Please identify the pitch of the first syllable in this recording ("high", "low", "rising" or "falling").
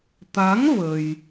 rising